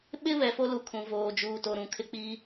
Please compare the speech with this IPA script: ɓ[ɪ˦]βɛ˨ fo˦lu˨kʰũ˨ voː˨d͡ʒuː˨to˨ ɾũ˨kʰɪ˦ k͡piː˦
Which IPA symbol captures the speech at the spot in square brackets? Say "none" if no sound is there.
ɪ˦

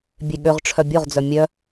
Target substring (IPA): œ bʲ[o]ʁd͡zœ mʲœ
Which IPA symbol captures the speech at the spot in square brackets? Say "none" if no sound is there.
o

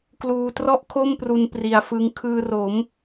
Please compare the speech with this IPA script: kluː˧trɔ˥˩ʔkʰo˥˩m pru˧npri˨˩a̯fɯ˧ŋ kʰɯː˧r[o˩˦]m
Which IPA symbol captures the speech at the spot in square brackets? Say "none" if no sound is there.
o˩˦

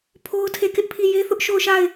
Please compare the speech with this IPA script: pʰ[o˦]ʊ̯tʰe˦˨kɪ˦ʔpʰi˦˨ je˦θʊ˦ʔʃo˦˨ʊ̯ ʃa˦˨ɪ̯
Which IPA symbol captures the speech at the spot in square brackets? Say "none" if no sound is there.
o˦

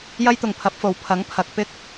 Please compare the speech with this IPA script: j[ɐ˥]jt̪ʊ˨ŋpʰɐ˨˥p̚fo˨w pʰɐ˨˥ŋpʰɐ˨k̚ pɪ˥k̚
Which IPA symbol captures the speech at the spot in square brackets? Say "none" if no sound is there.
ɐ˥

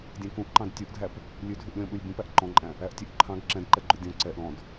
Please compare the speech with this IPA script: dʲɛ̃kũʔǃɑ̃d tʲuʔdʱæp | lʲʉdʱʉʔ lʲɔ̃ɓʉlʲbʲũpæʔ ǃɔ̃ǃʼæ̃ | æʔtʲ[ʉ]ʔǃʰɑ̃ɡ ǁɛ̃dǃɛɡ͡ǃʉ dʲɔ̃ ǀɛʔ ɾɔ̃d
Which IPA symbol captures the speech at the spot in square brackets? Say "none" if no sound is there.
ʉ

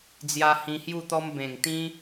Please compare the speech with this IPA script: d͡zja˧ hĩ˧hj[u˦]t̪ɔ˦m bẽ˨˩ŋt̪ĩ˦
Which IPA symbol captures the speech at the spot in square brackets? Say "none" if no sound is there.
u˥˧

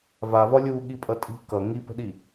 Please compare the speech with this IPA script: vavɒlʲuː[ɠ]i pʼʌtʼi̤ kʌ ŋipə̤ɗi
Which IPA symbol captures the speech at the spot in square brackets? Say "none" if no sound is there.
ɠ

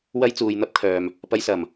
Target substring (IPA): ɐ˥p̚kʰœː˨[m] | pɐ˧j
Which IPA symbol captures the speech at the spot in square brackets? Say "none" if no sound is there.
m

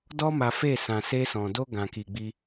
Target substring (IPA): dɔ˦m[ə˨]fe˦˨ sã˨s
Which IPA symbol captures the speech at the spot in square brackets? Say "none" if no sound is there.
a˨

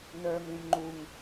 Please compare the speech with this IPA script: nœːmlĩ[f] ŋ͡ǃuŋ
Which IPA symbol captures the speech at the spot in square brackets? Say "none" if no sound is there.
m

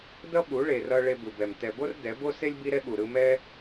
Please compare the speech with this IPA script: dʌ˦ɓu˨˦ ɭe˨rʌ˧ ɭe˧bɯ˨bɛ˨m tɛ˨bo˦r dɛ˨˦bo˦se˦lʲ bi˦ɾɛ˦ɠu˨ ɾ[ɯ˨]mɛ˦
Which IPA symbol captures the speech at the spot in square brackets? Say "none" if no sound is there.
ɯ˧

